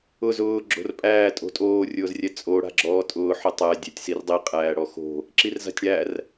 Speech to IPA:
ʊ z ʊː ɡ͡ǁ o̤ r pʼ æː tʼ o̤ tʼ oː rʲ ʊː z rʲ ɛ t͡sʼ o ɽ a̤ ɡ͡ǁ ɔː tʼ ʊː ħ ʊ tˤ æ dʲ æ tʲ s i r dˤ i qʼ æː ɽ ɔ x o̤ | ǁ i r z a̤ tʲ ɽ æ r

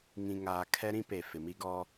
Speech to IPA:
ŋ ĩ˨ ŋ aː˨ kʰ ɛ˦ ɾ ĩ˦ p e˨ f ɪ˨ m i˦ ɡ ɔ˦

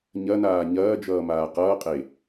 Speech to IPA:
ɲ ɐ n aː ɲ ɐː d͡ʒ ʌː m aː q ʌː qʼ e

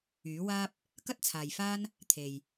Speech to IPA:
yː˨˥ w aː˥ p̚ | k ɐ˥ t̚ t͡sʰ aː˨ j f aː˥ n | t̪ʰ e˨ j

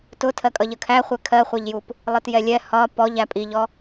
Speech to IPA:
t ʊ tʰ ɜ kʼ ʌ ʎ ə kʰ æ χʷ ɛ kʰ ɜ χʷ ɛ ʎ j u p | lˠ i t j ɛ lʲ ɛ h ɒ p ɔ ʎ æ pʼ i ʎ ɔ

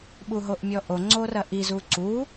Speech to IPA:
ɓ u ɦ o ʔ mʲ ɔ ʔ o ŋ͡ǀ o r ɐ ʔ i z u ǀ u

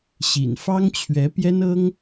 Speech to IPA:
ɕ ḭ˨˩ n f ɑ˥ ŋ t͡ɕʰ ɥ ɛ˧˥ p j ɛ˥ n ɤ˥ ŋ

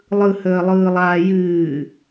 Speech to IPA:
lˠ ɯ h əː lˠ ɯː lˠ aː j ɨː

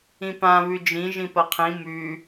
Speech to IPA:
ĩ p ã β ʉ d͡ʒ ĩ ʒ ĩ p ɐ qʰ ĩ m ʉ

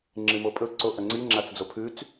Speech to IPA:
ŋ͡ǁ ɨ m o pʼ ɵ ǀ o ʔ ɐ ŋ͡ǀ i ŋ͡ǁ a t͡s d͡z o pʰ ʉ t͡s

